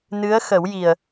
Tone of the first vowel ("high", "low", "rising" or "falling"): rising